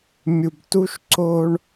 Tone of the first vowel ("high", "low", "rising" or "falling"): low